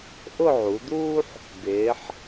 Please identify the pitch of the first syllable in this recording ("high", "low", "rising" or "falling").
falling